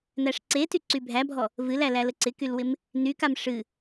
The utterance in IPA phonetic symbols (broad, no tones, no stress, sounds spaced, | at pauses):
n æ ʂ ǀ e t y ǀ y bʱ æ bʱ ɔ | v ɨ l æ l æ l ə ǀ ɪ k y l w ɪ m | n y k a m ʂ ɨ